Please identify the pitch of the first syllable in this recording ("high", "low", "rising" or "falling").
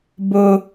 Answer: high